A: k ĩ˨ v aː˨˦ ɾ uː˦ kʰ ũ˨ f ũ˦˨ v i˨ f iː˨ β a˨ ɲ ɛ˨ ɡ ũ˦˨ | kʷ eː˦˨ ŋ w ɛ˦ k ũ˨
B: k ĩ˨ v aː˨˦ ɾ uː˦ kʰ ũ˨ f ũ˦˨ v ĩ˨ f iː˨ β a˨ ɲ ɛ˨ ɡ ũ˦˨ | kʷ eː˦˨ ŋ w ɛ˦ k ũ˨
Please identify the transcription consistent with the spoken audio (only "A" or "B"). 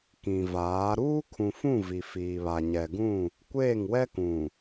A